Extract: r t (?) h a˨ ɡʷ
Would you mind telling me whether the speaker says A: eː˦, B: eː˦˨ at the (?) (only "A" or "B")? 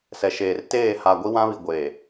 B